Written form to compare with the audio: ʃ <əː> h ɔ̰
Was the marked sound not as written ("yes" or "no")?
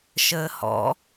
no